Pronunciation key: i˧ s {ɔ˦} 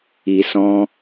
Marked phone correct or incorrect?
incorrect